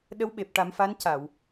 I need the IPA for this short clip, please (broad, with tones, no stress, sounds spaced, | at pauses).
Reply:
ɗ ə˧˥ w ɓ e˨˩ p̚ ʈ a˨˩˦ m f a˧˥ n c a˨˩˨ w